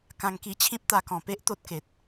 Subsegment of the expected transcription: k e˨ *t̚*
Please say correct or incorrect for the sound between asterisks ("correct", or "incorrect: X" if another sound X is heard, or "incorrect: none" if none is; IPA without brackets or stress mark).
correct